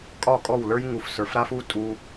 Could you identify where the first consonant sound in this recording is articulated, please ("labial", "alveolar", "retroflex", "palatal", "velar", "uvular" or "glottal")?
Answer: velar